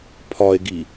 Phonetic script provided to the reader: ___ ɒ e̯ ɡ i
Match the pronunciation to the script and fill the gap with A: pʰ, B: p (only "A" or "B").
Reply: A